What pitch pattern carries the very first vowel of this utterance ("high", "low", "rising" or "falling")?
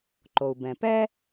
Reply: low